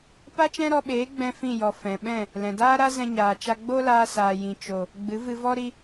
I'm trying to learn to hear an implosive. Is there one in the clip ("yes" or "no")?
yes